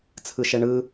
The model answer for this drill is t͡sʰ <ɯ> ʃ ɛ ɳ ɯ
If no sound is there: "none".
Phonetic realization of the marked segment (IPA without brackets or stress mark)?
ɯ